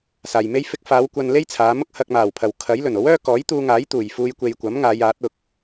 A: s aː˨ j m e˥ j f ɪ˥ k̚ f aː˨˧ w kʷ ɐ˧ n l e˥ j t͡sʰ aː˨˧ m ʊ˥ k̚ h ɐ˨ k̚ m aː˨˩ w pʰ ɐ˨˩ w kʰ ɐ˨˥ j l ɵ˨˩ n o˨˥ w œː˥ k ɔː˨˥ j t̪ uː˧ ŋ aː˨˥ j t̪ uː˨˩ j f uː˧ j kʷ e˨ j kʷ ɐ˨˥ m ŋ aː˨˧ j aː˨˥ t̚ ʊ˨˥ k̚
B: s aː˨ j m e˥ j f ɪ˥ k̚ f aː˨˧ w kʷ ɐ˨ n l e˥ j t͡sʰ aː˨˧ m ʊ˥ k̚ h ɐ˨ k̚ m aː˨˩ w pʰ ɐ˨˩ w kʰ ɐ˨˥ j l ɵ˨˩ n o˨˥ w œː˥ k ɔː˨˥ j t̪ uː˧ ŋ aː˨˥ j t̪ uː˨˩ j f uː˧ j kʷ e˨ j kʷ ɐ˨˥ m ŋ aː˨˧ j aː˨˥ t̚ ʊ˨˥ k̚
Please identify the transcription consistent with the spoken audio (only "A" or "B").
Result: B